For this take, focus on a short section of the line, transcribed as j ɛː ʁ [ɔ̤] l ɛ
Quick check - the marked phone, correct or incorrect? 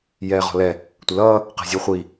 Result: correct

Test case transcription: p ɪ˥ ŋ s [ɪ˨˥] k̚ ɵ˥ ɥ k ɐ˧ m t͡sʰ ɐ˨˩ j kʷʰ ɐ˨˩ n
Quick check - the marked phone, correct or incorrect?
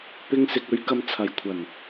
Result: incorrect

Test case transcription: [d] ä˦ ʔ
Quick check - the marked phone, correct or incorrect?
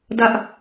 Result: correct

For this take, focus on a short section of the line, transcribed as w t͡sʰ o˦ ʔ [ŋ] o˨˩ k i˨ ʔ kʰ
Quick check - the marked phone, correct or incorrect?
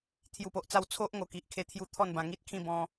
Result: correct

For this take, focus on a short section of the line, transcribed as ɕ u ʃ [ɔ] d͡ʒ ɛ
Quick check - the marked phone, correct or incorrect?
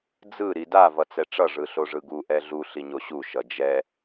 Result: incorrect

